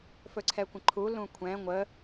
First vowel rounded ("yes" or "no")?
yes